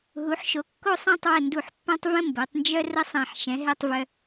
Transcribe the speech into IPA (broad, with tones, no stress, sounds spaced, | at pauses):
ɦ u˩˧ ħ ʃ o˩˧ kː o˥˧ sˤ ã˥˧ tˤ w ə˧˩ n d u˧˩ ħ pː ã˥ tˤ v ə̃˥ m b o˩˧ tˤ n d͡ʒ œ˥ r ə˥ sˤ ã˧˩ ħ ʃ ɛ̃˩˧ ɦ ɛ˥˧ tˤ v œ˧